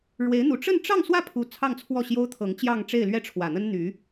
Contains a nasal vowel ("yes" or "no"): no